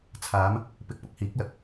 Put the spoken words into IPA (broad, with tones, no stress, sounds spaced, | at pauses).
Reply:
t͡sʰ aː˨˧ m | p ɪ˨˥ k̚ p ʊ˥ k̚ h iː˨˥ k̚ l ɐ˨˥ k̚